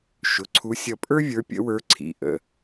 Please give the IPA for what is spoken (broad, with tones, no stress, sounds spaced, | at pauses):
ʃ ʊ˩˧˩ ǀʰ u˨˦ sʲ ʌ˧˩ pʼ ə˞˥ vʲ ə˞˨˦ pʲ ə̰˨˦ w ə˞˨˦ ǀʰ ḭ˩˧˩ ʔ ə̰˩˧˩